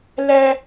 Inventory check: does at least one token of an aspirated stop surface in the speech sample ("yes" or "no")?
no